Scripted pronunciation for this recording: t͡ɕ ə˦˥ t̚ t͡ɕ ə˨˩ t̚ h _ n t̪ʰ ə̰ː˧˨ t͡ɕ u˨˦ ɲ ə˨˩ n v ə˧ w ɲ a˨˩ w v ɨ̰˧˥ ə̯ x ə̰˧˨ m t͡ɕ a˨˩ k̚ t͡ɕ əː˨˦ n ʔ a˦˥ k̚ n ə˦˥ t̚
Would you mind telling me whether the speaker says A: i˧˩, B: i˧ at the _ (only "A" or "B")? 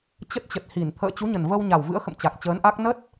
A